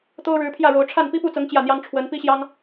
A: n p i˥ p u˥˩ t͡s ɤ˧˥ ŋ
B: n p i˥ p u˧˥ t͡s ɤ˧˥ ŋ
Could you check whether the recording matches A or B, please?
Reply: A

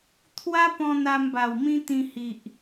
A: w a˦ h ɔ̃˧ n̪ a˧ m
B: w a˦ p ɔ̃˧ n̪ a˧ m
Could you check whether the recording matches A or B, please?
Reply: B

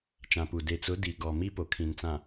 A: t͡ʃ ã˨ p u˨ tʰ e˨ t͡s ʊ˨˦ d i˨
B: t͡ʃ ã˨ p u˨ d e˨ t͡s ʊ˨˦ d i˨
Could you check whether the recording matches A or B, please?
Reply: B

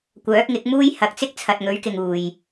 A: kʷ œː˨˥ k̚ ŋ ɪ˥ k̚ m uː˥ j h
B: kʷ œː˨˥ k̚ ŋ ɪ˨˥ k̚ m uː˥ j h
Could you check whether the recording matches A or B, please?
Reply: B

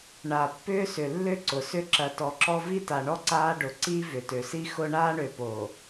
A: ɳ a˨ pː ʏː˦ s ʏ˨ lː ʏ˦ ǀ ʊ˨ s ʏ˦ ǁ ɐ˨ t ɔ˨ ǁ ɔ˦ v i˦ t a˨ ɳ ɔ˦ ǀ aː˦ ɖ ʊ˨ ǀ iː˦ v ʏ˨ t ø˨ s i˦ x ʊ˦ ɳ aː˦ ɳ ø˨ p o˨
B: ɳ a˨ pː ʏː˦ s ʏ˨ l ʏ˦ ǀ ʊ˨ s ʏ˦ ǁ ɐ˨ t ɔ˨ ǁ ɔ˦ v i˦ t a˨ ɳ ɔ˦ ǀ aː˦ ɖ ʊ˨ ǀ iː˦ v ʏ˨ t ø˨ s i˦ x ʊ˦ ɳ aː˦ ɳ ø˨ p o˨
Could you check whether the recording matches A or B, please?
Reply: A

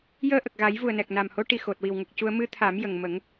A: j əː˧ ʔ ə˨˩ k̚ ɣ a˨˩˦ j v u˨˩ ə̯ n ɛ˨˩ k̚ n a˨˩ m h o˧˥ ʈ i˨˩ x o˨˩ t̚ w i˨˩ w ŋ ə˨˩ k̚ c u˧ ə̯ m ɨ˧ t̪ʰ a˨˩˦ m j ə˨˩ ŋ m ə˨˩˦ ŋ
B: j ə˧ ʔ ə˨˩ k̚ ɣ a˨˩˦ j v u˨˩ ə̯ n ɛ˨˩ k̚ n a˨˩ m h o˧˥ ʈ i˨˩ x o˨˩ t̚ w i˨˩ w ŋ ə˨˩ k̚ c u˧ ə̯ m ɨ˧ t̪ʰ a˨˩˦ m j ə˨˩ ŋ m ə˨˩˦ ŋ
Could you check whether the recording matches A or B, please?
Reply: A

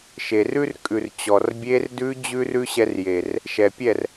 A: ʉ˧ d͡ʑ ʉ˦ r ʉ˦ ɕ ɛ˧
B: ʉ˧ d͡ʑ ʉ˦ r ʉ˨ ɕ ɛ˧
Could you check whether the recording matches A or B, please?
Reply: A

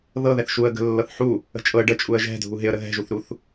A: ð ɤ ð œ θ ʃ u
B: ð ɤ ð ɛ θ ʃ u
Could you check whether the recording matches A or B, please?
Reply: B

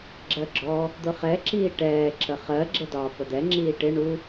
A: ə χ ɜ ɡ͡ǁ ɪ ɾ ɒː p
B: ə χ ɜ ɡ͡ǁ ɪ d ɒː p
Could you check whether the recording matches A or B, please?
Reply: B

